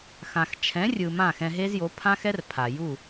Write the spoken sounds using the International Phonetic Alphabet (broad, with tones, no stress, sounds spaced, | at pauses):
x ã˨ x t͡ʃʰ ɛ̃˨˦ rʲ ɯ˨ m ã˦˨ x ɛ̃˧ ɦ e˦ z j o˨˦ pʰ ã˦ x ɛ˦ r pʰ a˨ j u˦˨